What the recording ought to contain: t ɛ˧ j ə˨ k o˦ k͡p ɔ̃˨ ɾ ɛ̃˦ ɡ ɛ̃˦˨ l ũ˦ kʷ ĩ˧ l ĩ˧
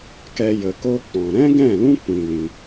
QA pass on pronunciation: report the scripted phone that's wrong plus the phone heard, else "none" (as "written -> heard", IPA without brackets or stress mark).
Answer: t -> k